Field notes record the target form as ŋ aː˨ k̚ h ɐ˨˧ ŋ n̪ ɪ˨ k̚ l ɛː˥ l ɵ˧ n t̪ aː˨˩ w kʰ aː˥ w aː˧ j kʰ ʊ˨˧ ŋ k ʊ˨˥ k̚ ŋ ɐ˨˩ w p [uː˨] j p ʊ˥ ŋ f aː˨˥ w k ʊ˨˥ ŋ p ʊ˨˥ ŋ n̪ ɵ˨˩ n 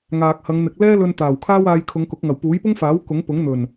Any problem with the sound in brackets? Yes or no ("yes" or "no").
yes